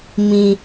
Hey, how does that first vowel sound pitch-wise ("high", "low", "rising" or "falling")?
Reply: low